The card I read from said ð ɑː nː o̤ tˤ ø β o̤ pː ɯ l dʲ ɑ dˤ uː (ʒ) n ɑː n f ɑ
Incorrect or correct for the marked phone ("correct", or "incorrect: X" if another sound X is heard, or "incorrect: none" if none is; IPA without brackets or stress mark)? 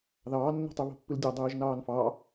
correct